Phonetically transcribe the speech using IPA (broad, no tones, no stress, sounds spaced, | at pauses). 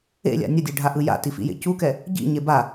ḛ lʲ a̰ nʲ ʌ dʲ e ɖʱ a ʔ ɯ j a̰ t i f ḭ j ḛ c u k ɛ | ɟ ḭ ɲ e b a